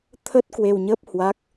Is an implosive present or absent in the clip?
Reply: absent